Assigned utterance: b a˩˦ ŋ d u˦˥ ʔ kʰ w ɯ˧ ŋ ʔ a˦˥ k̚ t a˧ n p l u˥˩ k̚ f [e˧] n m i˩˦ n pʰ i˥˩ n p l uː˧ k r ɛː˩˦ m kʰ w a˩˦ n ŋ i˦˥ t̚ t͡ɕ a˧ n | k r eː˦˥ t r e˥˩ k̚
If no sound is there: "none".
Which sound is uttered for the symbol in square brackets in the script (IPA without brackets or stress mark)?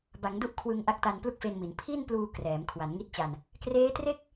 e˧